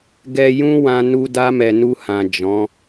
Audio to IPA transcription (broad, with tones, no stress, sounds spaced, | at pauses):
ɡ ɛ˧ j ũ˦ w ã˧ n u˧ d a˦ m ɛ˧ n u˧ h ã˨ d͡ʒ ɔ̃˨˦